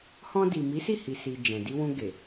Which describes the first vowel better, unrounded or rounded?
rounded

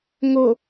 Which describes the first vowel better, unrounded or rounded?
rounded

